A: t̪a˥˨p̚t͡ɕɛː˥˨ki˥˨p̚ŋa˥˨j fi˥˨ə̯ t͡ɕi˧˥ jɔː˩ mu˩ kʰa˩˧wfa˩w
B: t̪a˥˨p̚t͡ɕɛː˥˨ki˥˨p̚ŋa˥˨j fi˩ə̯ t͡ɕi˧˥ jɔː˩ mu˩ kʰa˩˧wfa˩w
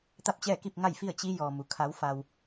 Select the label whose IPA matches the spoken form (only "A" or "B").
A